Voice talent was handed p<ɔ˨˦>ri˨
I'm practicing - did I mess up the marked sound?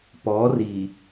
no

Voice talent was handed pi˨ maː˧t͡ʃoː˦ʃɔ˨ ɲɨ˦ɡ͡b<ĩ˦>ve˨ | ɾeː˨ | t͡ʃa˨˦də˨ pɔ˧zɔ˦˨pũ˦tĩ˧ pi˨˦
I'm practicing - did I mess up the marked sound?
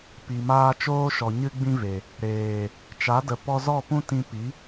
no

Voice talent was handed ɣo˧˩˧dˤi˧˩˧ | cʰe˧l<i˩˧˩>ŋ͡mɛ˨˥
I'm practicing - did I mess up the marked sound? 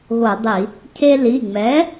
no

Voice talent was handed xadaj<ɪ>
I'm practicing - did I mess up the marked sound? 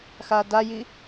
yes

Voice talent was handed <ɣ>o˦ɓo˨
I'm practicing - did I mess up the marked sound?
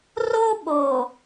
yes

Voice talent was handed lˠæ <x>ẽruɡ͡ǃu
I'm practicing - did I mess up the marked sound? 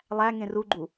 yes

